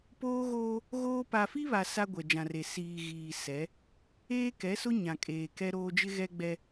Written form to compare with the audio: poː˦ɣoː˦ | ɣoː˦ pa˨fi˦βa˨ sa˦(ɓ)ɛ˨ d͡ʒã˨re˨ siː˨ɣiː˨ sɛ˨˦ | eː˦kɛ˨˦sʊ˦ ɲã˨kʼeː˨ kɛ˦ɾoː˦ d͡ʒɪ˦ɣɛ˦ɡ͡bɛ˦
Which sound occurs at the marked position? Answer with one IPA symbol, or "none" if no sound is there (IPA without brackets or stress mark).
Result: ɡʷ